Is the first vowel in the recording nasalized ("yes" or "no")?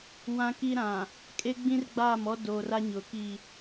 yes